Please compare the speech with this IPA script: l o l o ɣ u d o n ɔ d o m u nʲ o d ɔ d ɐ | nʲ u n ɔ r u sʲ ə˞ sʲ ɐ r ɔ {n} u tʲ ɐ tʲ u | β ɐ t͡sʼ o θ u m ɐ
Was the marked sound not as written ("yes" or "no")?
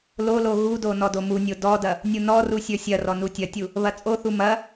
no